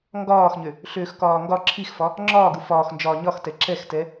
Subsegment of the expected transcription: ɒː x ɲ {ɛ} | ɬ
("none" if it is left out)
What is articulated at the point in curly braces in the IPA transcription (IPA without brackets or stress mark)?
ø